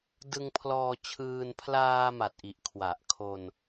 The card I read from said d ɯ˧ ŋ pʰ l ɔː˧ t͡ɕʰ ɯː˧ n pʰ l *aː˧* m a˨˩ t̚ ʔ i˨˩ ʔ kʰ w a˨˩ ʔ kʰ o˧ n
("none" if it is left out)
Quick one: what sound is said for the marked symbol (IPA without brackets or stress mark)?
aː˧